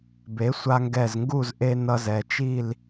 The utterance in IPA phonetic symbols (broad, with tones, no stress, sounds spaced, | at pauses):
b e˩˥ sʷ a˧ ŋ ɡ ɛ˧˩ z ŋ ɡ u˥˨ z ʔ e˧ n ʌ˧ z ɛ˩˧ t͡ʃ i˥˨ l